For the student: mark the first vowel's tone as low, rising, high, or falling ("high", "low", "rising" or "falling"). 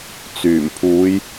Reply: low